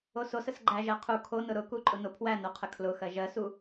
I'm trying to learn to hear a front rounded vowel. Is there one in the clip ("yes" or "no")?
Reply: no